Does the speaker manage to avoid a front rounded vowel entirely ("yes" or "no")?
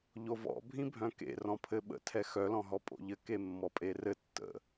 no